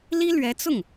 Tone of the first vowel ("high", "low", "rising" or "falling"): high